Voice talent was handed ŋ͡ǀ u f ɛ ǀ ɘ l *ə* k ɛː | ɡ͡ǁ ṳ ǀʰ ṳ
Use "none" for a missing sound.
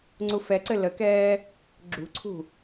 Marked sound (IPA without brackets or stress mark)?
ə